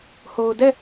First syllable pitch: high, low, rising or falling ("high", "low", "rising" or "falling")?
low